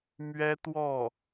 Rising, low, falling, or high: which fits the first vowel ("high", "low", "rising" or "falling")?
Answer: high